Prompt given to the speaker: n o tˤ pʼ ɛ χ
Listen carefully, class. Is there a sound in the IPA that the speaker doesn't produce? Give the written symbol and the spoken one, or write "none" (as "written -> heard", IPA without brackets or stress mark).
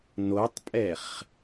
none